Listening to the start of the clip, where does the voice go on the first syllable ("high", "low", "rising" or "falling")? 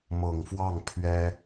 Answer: low